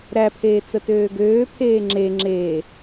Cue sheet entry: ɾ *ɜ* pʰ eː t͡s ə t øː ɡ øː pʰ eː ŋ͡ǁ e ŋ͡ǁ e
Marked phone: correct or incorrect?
incorrect